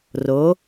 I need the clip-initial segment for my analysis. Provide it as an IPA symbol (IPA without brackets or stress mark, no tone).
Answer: r